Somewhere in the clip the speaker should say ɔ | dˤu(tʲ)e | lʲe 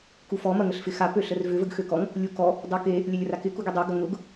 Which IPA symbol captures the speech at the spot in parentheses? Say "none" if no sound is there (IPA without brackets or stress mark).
k